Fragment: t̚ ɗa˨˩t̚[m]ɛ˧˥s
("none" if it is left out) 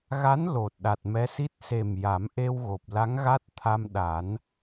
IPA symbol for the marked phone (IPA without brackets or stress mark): m